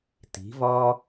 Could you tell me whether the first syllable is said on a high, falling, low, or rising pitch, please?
rising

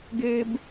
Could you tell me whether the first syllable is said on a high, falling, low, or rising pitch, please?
high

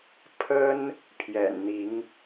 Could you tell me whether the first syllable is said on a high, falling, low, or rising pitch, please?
high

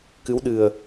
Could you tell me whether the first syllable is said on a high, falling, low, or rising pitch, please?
rising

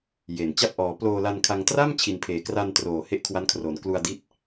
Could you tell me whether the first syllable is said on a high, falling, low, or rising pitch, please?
low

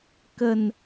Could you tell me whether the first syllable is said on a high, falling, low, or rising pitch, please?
low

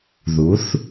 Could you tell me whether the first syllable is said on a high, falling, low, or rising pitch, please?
rising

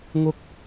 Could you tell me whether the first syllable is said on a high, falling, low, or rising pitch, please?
high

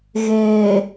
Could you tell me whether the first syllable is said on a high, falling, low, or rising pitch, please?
low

